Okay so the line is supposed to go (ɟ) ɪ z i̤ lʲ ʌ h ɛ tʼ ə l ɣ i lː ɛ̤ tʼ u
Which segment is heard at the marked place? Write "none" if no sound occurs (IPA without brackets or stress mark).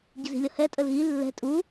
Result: ɟ